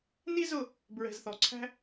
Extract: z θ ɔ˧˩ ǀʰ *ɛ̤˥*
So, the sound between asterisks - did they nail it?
no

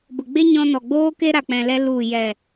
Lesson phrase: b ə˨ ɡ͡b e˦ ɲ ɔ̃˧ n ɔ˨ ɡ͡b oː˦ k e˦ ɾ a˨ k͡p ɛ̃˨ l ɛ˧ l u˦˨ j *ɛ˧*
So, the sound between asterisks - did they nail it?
no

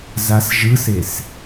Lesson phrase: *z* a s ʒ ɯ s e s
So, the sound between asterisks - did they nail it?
yes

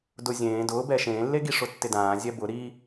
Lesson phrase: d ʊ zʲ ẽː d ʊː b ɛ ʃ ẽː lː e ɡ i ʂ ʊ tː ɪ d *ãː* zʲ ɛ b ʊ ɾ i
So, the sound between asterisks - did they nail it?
yes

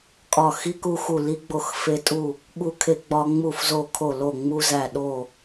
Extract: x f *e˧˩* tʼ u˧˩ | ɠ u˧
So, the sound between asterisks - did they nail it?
no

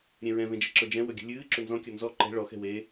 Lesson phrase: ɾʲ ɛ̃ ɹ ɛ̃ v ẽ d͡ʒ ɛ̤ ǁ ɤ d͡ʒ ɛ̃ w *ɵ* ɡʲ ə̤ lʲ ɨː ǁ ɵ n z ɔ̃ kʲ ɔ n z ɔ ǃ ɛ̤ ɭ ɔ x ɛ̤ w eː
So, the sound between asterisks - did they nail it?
yes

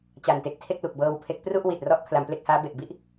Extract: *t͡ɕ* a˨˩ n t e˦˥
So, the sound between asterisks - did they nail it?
yes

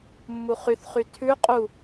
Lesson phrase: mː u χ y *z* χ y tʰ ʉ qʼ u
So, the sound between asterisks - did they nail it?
no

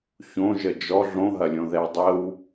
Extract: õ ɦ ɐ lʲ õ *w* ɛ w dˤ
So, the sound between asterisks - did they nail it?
no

